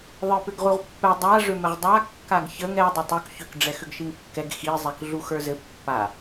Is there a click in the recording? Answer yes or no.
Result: no